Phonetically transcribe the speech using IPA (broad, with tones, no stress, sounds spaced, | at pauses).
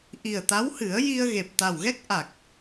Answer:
ʔ i˨˩ ə̯ t̪ a˧˥ w h ɨ˨˩˦ ə̯ j i˧ ə̯ ɣ e˨˩ p̚ t̪ a˨˩ w ɣ ɛ˦˥ k̚ ʔ a˨˩ k̚